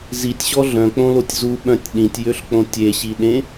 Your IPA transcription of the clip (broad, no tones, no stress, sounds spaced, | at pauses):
z i tʲ ɕ ɔ ɮ œ̃ k͡p õ l o tʲ z u ɓ œ̃ tʲ ɗ ĩ tʲ j ø ɬ k͡p õ tʲ e ɕ i ɗ ẽ